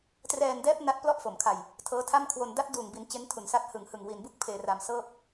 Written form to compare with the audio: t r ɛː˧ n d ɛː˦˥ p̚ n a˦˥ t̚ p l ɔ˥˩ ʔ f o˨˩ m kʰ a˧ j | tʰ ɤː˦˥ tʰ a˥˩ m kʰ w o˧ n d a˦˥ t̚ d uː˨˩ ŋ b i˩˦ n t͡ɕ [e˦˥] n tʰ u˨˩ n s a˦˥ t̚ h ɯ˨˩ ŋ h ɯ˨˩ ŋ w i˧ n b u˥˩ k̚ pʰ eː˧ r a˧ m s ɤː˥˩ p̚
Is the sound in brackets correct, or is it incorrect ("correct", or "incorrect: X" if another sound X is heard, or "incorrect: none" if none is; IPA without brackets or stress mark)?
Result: correct